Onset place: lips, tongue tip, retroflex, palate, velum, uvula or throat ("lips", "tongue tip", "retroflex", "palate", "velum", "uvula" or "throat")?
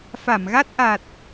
lips